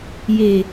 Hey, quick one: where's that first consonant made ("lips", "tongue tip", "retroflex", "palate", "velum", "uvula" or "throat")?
palate